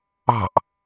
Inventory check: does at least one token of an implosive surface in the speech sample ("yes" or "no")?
no